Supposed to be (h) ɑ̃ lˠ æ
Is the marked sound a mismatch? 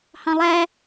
no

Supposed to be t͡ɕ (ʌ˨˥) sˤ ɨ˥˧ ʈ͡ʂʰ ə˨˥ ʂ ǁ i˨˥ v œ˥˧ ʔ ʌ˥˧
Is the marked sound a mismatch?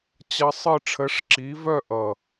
yes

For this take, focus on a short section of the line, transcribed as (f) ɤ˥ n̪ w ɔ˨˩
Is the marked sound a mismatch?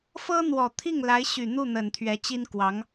no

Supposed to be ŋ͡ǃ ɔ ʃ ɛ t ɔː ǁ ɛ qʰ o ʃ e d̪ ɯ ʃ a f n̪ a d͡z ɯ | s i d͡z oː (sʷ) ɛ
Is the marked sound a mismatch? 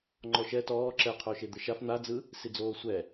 no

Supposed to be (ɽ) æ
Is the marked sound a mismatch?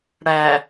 no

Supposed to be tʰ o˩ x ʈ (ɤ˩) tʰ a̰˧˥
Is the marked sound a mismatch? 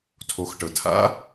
no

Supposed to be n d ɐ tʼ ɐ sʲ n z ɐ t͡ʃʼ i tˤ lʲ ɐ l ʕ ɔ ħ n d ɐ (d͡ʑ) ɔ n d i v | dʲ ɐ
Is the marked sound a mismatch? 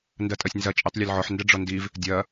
yes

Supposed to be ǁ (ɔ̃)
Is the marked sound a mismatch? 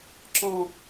no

